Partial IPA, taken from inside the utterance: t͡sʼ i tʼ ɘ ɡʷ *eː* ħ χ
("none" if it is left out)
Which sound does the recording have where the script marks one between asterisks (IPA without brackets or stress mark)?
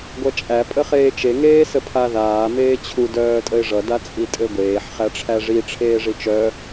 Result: eː